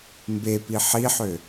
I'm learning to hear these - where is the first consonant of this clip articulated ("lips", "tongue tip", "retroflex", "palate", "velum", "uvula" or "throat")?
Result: lips